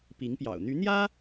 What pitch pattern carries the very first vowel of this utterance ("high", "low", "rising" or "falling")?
rising